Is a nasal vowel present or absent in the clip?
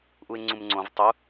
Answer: present